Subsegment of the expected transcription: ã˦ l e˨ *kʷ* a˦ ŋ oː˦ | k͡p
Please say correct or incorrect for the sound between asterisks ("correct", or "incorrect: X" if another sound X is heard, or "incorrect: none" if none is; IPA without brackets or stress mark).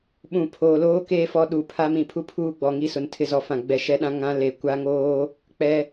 correct